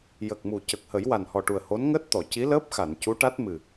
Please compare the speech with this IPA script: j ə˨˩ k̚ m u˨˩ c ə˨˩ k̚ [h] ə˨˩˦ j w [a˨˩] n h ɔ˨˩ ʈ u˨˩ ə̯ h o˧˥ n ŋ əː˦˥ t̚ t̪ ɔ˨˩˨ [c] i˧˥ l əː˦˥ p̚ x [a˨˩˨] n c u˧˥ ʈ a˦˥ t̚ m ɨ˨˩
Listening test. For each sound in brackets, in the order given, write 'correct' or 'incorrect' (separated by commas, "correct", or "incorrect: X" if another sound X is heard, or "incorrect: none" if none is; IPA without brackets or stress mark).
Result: correct, correct, correct, correct